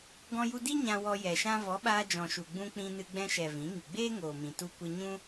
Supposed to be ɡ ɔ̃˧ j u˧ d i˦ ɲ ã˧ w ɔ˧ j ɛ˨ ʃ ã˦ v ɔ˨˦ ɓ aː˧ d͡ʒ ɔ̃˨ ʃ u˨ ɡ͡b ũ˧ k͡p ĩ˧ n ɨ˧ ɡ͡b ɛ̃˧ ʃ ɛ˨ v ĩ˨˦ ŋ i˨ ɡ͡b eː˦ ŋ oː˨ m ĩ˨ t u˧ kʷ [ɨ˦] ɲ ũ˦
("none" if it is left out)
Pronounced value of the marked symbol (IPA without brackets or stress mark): ɨ˧